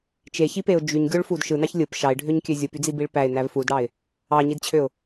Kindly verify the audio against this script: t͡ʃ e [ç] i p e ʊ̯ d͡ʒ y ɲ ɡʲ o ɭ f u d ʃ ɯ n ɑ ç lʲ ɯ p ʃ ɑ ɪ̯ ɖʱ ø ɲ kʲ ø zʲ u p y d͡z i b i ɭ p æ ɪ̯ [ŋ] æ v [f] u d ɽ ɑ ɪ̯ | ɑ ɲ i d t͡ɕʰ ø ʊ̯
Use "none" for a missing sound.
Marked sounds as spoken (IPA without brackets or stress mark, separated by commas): ç, n, f